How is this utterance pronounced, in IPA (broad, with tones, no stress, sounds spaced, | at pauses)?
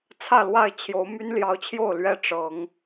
t͡sʰ ä˥˨ l w a˥˨ ɪ̯ t͡ɕʰ j o˨˦ ʊ̯ m y˦ n l j ɑ˨˦ ʊ̯ t͡ɕʰ j o˥˨ ʊ̯ l ɥ ɛ˦ ʈ͡ʂ ɤ˨˦ ŋ